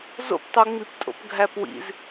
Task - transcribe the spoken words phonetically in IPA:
z o̰ p tˤ u ŋ͡m i p tʼ o̰ p ɡʱ æ p w ḭ z

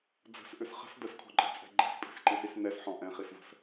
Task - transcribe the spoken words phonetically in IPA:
d͡z ə̤ s ʔ ʏ s χ ə̤ s d ə s kʰ ɔ̤ ǃʼ i̤ t͡sʼ ɛ̤ ɡ͡ǃ ɛ̤ s pʼ i̤ s ǃ i s i s n ɛ s ħ ɔ̃ ʔ ɛ̃ χ i s v ə̤ s

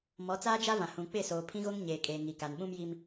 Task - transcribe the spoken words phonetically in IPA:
m ɔ˨˦ t͡s aː˦ d͡ʒ a˦ v ã˨ h ũ˨ k͡p ɪ˦˨ s oː˨ pʰ ĩ˦ ɣ o˦ ŋ ɲ eː˨ kʼ eː˨ ŋ i˨ k a˨ n ɓ ũ˦ m j i˦ m

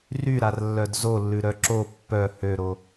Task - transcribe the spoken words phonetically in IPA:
r y ɾ a r lː œ d z o lː ʉ ɾ œ ǁ o pː œ h ø ɾ o

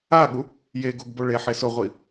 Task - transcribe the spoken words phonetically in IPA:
a ɠ u | j e ɡ o ɡ b o ɭ e ħ e s ʊ ʁʷ i

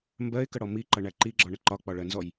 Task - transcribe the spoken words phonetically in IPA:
m b ɜ ɪ̯ k ə ɽ ɔ m i ǃ ʌ ɳ æ ǃ i ɡ͡ǁ ɔ ɳ ə ǃ ɒ k͡p ɒ ɭ ɜ n z ɔ j

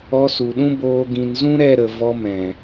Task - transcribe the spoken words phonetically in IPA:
ɔ˧ s u˨ ɗ ũ˦ b oː˧ ɡ ĩ˨ n z ũ˦ ɾ ɛ˦˨ ɾ ə˨ v ɔ˧ m ɛ̃˨

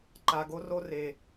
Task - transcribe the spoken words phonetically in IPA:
ǃ a˧ ɡ o˥ r o˥ r e˧

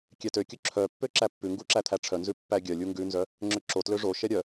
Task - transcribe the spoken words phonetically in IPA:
kʲ ɛ t ø kʲ ɵ ǁʰ œ pː ø ǁ æ pː ʉ ŋ ɡ u ǁ æ t̪ʰ æ ʈ͡ʂʰ œ n z ʉ pː æ ɡʲ œ lʲ u ŋ ɡ ʉ n z œ | ŋ͡ǁ ø ǁ o t l ø ʐ o ʃ ɛ ɾʲ œ

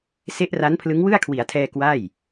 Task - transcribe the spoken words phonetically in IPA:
s e˦˥ ʔ r a˦˥ n pʰ l ɯ˦˥ ŋ w ɯ˥˩ a̯ kʰ w i˩˦ a̯ tʰ ɛː˧ k w a˥˩ j

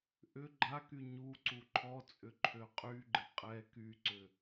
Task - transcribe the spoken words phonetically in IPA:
ʔ ʏ ɡ͡ǃ a k y ɲ u ǀ u ǃʰ ɔ t͡sʼ ʏ ǃʰ ø qʼ y ɡ͡ǃ ɪ qʼ ɛ k y ǀ ʏ

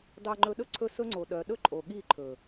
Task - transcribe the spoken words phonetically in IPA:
d ɑ˧ ŋ͡ǃ ɵ˧ ɗ ɵ˦ ǀʰ ɵ˦˨ s ɵ˦ ŋ͡ǀ o˨ ɗ œ˨ ɗ ɵ˦ ǃʼ o˨ ɠ i˦˨ ǃʰ ɵ˨

